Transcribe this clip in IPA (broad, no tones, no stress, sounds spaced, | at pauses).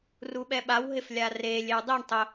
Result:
r u ɓ ɛ ɓ a w ɦ ɪ f lʲ a r e lʲ e w dˤ i ɳ tˤ ʊ